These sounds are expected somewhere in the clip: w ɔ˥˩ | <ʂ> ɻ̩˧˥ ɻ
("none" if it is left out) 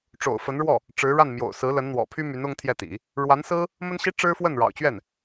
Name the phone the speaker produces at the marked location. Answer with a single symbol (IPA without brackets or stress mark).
ʈ͡ʂ